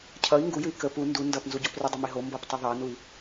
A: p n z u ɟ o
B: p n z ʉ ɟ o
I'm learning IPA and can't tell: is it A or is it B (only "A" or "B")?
A